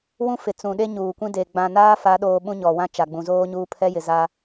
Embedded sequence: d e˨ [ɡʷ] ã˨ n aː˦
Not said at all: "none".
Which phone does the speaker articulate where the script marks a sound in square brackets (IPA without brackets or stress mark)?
ɡ͡b